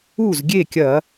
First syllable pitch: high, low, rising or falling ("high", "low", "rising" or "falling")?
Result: falling